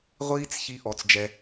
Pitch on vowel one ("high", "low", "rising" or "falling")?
high